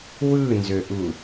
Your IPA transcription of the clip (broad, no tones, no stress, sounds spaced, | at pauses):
w ɯ n z ø ʔ u